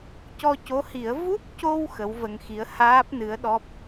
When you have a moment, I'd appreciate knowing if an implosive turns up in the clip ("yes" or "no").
yes